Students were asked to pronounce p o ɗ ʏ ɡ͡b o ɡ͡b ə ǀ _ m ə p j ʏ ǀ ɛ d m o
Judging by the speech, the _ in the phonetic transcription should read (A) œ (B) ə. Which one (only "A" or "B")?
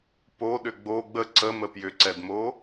B